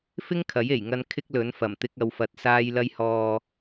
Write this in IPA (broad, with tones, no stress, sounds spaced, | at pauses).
f ɪ˥ ŋ kʰ ɐ˨˥ j e˨˩ j ŋ ɐ˧ n kʰ ɪ˥ k̚ l ɵ˨˥ n f ɐ˨˩ m t̪ ɪ˧ k̚ ɐ˨ w f ɐ˨ t̚ s aː˧ j l ɐ˧ j h ɔː˨